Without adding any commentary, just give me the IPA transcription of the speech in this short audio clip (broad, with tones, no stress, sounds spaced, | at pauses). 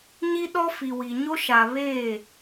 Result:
ɲ i˦ ɗ ɔ˦ f i˨ w i˨ ɲ o˦ ʃ a˨ β eː˦˨